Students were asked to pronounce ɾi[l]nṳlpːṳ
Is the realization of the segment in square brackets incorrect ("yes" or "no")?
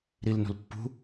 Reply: no